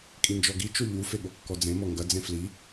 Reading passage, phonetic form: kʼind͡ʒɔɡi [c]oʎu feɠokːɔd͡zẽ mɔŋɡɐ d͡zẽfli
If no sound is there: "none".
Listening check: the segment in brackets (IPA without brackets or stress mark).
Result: t͡ʃ